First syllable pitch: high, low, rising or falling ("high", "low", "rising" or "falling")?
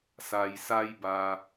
low